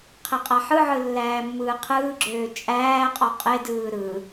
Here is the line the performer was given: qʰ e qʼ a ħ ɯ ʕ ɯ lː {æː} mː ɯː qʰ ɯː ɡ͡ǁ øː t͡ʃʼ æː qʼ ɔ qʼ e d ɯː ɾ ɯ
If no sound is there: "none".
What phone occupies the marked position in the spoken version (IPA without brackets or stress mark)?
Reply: æː